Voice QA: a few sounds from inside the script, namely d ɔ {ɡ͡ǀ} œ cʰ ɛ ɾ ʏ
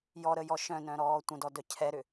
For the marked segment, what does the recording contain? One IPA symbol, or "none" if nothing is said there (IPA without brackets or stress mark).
d